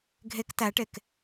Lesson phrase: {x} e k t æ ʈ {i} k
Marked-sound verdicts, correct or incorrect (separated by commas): incorrect, incorrect